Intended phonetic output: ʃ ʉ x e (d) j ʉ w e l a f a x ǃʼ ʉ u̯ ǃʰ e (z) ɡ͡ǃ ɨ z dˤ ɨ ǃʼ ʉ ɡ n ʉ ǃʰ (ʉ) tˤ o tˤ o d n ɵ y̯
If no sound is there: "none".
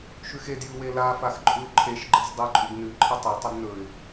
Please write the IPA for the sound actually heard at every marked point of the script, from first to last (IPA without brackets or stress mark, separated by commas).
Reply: d, ʃ, ɨ